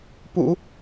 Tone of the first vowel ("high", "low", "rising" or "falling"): low